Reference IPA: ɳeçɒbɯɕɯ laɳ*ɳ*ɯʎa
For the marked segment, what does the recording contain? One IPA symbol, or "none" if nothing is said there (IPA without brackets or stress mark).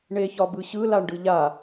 ɖ